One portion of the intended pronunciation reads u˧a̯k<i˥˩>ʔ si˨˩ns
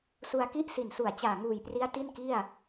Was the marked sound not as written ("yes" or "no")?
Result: no